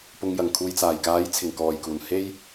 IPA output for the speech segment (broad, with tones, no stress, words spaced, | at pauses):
pʊ˨ŋjɐ˨˩ŋkʰuː˨j t͡saː˨˩jkaː˨˥jt͡sʰɪ˨˩ŋ kɔː˨˩jkuː˨˩n he˧j